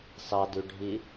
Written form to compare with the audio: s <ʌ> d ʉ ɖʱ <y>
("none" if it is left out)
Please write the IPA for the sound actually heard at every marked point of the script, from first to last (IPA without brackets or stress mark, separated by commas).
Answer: ɑ, i